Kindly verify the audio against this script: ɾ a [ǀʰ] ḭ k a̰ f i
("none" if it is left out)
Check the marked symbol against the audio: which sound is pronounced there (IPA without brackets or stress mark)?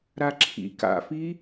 ǁʰ